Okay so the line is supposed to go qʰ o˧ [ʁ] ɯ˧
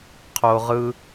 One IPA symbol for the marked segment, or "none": ʁ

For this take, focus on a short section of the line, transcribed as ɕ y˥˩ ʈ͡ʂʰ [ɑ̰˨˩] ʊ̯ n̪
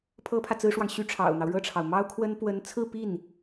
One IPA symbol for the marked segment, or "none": ɑ̰˨˩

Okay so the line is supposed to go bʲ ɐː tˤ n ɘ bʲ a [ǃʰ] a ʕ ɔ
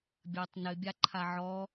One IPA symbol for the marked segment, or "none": ǃʰ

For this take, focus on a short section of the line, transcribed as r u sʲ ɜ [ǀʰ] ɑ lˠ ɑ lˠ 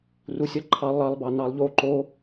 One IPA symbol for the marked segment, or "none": ǃʰ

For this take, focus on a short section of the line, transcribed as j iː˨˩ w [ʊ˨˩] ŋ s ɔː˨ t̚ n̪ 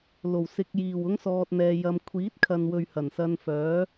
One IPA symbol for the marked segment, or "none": ʊ˥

